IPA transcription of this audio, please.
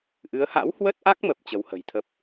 ʔ ɨ˨˦ ə̯ h a̰˧˥ w h w ə˦˥ t̚ ʔ a˦˥ k̚ m ə˨˩ p̚ t͡ɕ ə˨˦ w h ə̤˨˩ j t̪ʰ ə˦˥ p̚

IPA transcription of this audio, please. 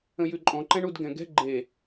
ə̃ j ʉ ǃʼ ɔ̃ ǃ ɛ̃ ɳ u d ɡ ɛ̃ ɡ ɛ̤ ɡ͡ǃ e

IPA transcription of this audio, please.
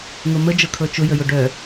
ŋ o m ə d͡ʒ ɤ kʰ ɤ t͡ʃ ʊ j ə j ʊ ɖ œ

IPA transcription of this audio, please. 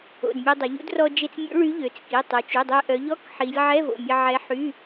o̰˩˧˩ d mʲ e˧ dˤ ə˩˧ ʎ ṵ˧˥ d r ɔ˧ d͡ʒ e˧ t͡s mʲ o̰˧˥ ɭ y˧˥ ʎ ø˩˧ t͡s k i˩˧˩ tˤ œ˩˧ t͡ʃ y˩˧˩ dˤ ø˧ ʔ œ˩˧ ʎ ɔ˧˥˧ k ħ i˩˧ lʲ ʕ ɛ˧˥˧ v o̰˩˧˩ mʲ ə˧ ʕ ɛ˧˥ ħ y˧˥˧

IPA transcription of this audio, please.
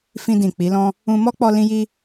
f ĩ˧ d ĩ˨ k͡p i˨˦ l ɔ̃˦ | ũ˧ m ɔ˦ k͡p ɔ˧ l ĩ˦ j i˦

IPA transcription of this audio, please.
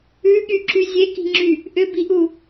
ʉ ɠ y ǁ y zʲ e k i̤ ŋ͡ǁ y | ʔ ʏ b i ʔ u

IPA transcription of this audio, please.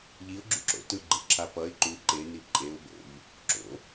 ʎ i ʊ̯ ɡ͡ǁ ṵ ǁ o̰ t ɯ ɡ͡ǃ ɯ ǁʰ a p ʌ ɪ̯ ǃ u ǃ e n i ǃʼ e ʊ̯ b o̰ ʎ | ǁ o̰

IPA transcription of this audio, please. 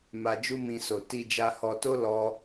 m a˧ d͡ʒ u˦ m ĩ˧ s o˨ t i˧ d͡ʒ a˧ h ɔ˧ t o˦ l ɔ˧

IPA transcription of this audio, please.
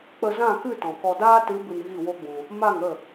k͡p ə˧ z ã˦˨ k ɨ˦˨ t ɔ̃˨ k ɔ˧ d aː˦ t ɨ˨˦ b ɨ˧ n ɣ i˦˨ w o˦ ɡ͡b ũ˧ | m a˦˨ ŋ ə˦˨

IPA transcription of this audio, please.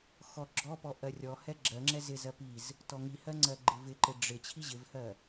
x ɔ ɡ͡ǁ ɔ p ɔ ʔ ɜ rʲ ɔ h ɛ ɡ͡ǁ ɜ ŋ͡ǁ ɛ z ɪ z ɜ p i z | t ɔ ŋ i h ɜ ŋ͡ǀ ɜ ɡ͡ǃ ɪ v ɪ ǃ ɪ ɖ͡ʐ ɪ t͡ɕʰ i ʑ ɪ v h ɜ

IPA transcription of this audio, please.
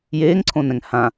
j eː ŋ ǀʰ õ n ɛ̃ ŋ h ã

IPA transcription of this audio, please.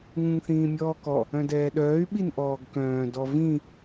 ŋ ũ ŋ θ ĩː mʲ ɔː k ɔ | œ̃ d ɛː ɗ œː y̯ ɓ i n ʔ ɔː ɡ k œ̃ː d ɔ v ĩ

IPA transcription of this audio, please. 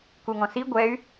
k u ŋ ɔ̃ s i ɡʷ ɛ y̯

